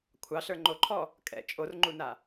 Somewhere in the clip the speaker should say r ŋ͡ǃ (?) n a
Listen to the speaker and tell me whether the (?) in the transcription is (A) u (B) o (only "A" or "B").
A